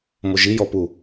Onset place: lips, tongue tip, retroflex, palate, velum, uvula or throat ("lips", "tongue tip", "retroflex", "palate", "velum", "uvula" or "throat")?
lips